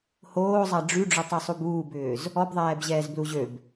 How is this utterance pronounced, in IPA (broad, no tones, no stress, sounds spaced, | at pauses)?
h oː zˤ a ɖ͡ʐ y ɖ͡ʐ ʏ tˤ y sˤ u b uː b ʏː z | ɔ b ðˤ ɛː b ʑ ɛː z b l u ʑ ø b